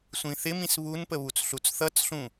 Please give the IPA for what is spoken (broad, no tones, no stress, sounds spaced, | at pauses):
sʷ ĩ θ ɪ m ĩ s β u n p ə β u t͡s ɬ u t͡s θ ʌ t͡s ɬ ũ